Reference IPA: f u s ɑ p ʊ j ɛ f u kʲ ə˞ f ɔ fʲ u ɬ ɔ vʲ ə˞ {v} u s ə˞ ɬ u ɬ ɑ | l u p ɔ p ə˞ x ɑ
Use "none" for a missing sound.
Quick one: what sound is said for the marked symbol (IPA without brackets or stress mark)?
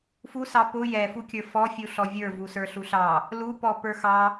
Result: v